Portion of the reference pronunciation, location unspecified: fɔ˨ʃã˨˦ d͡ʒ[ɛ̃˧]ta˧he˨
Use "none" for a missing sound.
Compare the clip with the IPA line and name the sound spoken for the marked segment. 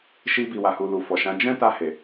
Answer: ɛ̃˦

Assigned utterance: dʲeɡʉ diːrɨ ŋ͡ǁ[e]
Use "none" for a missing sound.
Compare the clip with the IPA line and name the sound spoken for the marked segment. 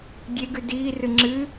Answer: ɨ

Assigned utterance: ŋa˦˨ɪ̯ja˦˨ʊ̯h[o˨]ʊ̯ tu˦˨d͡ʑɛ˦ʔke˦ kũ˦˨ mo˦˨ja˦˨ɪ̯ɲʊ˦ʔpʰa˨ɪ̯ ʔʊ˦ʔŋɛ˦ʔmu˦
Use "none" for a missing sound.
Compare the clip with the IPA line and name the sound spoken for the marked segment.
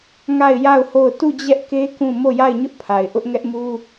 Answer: o˦˨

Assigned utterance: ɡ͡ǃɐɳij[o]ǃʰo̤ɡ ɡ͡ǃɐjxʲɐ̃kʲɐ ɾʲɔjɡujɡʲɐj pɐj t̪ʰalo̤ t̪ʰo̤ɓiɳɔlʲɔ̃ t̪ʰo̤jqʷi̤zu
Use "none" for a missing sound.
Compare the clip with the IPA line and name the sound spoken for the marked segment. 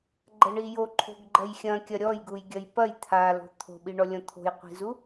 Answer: o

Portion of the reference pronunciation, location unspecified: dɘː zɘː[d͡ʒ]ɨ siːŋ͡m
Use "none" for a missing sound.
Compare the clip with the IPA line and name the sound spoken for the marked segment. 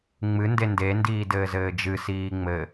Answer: d͡ʒ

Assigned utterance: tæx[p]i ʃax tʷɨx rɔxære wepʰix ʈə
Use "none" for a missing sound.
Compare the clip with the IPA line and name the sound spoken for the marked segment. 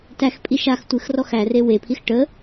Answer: pʼ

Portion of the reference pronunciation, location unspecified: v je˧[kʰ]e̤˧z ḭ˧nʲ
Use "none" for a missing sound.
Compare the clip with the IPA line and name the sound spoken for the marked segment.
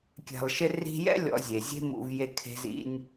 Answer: kʰ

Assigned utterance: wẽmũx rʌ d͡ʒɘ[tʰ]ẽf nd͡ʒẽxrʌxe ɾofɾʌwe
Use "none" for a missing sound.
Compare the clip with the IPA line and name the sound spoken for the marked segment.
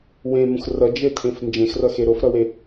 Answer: tʰ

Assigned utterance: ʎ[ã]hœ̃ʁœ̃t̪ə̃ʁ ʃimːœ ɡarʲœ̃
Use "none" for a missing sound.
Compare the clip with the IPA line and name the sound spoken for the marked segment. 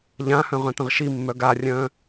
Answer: ã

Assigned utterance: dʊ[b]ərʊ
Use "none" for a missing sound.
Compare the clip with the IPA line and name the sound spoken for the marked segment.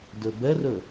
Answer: b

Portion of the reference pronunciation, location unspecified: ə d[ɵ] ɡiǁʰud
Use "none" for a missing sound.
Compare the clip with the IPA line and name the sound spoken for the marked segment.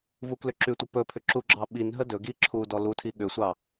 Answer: ɵ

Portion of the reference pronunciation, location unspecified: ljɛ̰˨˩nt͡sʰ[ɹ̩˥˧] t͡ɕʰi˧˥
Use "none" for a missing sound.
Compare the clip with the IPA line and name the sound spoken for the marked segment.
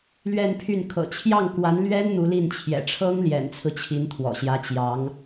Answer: ɹ̩˦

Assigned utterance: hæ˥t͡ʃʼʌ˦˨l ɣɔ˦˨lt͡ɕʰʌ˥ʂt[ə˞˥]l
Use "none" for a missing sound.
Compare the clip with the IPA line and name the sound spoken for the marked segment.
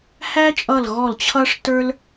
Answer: ə˞˥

